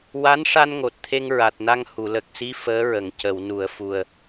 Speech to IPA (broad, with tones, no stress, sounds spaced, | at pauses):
w a˧˥ n ʂ a˧ n ŋ o˨˩ t̚ t̪ʰ e˧ ŋ ɹ a˨˩ t̚ n a˧ ŋ h u˨˩˨ l ə˨˩ k̚ s i˧˥ f əː˧˥ ɹ ə˨˩˨ ŋ c ə˨˩˨ w n u˨˩˨ ə̯ f u˨˩ ə̯